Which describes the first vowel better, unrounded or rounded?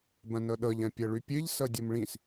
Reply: unrounded